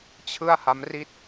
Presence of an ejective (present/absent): absent